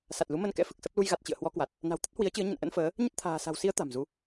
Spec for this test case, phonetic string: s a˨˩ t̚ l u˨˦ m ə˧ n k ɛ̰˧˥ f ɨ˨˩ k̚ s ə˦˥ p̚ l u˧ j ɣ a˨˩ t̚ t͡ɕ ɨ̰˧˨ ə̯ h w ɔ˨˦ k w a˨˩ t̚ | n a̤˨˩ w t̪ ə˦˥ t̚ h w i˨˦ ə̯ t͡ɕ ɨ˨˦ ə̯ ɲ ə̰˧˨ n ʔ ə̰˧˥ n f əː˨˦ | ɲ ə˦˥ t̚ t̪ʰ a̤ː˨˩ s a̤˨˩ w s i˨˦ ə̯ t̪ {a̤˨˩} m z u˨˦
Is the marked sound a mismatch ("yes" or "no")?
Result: no